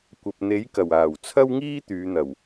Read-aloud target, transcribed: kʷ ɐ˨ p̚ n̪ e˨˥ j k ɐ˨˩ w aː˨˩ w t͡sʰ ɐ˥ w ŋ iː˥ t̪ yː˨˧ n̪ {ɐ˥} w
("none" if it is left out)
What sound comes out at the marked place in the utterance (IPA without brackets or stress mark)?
ɐ˨˩